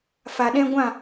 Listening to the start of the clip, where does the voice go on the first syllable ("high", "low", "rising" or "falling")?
low